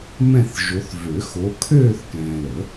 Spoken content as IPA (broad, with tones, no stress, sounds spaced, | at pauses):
m ɛ̃˥˧ θ ʒ o˨˦ θ v ø˨˩˦ x o˨˦ kʰ øː˥˧ θ k ɛ̃ː˨ l ə˨˩˦